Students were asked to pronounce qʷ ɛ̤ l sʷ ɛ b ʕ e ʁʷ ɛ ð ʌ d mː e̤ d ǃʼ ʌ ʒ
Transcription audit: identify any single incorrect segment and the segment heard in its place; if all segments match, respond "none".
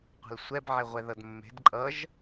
none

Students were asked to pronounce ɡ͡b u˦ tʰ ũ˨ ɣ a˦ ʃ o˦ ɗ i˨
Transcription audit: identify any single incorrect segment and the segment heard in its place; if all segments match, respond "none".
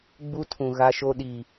none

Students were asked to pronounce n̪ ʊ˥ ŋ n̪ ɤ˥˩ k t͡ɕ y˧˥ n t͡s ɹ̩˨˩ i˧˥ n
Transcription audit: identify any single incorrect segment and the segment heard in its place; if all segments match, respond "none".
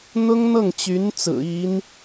k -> ŋ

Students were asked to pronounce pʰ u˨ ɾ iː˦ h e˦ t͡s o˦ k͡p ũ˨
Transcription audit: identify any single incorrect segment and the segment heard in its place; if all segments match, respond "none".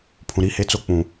u˨ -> ũ˨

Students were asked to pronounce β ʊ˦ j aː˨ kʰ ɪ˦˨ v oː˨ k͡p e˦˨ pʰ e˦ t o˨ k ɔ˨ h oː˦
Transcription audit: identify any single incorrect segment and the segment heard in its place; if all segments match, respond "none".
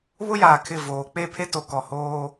none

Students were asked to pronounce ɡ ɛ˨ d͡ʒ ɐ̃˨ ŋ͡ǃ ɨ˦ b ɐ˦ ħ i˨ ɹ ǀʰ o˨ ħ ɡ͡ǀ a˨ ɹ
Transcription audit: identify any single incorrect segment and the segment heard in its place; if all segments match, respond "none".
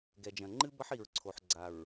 none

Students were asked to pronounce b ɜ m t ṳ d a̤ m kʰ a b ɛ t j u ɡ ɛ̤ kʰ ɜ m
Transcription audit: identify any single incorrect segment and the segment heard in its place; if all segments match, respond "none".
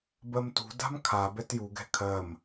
none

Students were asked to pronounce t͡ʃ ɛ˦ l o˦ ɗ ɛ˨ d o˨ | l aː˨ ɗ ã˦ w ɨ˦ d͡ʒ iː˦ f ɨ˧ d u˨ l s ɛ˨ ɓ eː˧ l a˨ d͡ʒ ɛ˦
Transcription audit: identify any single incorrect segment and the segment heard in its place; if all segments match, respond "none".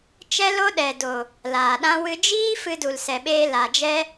none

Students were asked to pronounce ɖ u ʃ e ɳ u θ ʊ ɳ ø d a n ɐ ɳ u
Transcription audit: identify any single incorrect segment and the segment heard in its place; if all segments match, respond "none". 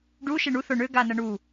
d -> ɡ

